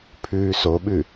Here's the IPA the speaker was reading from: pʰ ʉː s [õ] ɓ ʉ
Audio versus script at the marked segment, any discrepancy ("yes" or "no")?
yes